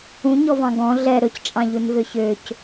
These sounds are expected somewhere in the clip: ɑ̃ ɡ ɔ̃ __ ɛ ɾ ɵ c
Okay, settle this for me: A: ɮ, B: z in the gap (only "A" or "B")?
A